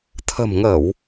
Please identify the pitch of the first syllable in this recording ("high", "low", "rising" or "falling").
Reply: low